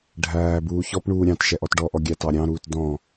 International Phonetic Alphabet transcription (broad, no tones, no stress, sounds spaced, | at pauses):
ɖʱ æː b uː ç ɔ p ɳ uː ɾʲ ɑ̃ t ʃ ɛ ʔ ɔ t ɖ ɔ ʔ ɔ ɡʲ æ t ɑ ɾʲ ɑ̃ ɾ uː t d ɔ̃